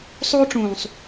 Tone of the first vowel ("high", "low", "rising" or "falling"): high